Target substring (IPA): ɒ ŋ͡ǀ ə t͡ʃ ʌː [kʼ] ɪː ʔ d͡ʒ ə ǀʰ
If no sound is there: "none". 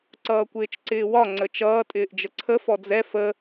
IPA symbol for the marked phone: tʼ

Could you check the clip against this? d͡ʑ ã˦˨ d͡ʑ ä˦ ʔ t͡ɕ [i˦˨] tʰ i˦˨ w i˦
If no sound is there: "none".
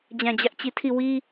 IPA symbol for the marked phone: i˦˨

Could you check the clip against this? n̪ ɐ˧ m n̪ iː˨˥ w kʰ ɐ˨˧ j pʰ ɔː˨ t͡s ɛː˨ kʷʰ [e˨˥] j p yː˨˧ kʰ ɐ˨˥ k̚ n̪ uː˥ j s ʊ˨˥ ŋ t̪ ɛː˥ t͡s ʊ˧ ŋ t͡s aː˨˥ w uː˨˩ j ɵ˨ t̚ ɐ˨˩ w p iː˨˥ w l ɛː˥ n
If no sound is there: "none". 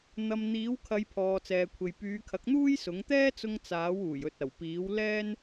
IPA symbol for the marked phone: e˨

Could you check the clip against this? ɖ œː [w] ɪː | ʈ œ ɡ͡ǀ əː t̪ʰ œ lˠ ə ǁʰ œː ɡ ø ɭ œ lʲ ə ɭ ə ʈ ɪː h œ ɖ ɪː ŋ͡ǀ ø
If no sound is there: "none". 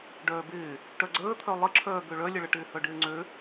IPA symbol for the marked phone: b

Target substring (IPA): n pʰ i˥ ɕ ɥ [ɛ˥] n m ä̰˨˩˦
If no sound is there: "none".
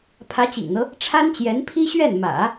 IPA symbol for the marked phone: ɛ˥˩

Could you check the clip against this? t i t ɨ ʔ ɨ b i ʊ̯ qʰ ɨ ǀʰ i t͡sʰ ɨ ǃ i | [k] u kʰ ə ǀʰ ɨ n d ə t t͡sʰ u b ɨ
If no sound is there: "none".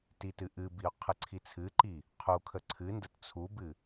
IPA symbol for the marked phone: qʰ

